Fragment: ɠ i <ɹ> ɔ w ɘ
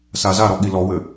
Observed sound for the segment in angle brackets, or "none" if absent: l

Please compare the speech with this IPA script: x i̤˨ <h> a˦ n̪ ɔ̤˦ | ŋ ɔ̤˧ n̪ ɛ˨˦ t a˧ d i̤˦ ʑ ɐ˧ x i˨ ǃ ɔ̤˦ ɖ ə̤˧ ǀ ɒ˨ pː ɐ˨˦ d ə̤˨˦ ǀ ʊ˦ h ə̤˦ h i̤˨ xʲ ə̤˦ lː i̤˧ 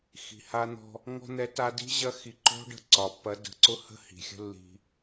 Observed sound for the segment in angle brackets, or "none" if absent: h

